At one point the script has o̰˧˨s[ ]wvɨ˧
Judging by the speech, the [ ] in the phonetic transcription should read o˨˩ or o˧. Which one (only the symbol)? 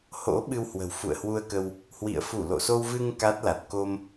o˧